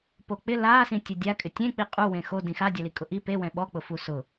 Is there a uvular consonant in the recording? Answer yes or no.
yes